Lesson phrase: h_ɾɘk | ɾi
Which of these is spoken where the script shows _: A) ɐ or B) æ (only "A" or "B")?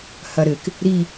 A